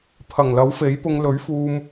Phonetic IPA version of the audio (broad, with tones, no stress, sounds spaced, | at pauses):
pʰ ɐ˨˩ ŋ l ɐ˨˥ w f e˨˥ j p ʊ˧ ŋ l ɵ˨˥ ɥ f uː˧ m